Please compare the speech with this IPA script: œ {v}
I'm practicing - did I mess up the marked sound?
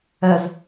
no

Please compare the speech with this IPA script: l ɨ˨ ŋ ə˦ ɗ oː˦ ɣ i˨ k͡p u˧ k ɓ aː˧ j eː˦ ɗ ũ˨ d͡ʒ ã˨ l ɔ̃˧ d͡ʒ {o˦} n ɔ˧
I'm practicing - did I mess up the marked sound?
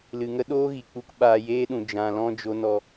no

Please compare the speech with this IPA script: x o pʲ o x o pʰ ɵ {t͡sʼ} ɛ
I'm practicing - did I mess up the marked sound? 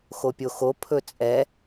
no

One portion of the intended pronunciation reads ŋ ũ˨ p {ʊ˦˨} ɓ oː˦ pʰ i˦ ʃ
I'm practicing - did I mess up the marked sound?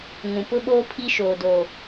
yes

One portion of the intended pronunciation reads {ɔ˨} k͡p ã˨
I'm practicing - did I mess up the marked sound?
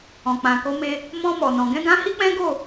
yes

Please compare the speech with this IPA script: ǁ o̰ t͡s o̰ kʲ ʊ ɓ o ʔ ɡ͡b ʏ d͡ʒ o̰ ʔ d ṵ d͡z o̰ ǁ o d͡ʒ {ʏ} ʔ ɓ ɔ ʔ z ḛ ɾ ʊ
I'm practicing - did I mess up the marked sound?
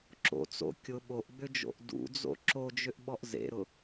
no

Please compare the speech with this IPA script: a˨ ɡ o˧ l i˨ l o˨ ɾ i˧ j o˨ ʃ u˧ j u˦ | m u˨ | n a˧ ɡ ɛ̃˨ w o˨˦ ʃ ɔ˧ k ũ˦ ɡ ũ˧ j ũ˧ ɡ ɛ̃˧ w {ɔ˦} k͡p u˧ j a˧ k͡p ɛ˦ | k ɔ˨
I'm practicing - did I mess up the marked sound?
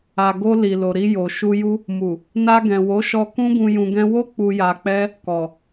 yes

